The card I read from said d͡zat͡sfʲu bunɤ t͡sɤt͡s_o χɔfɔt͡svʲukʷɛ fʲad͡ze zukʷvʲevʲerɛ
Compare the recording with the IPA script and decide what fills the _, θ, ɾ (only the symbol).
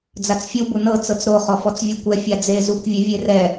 ɾ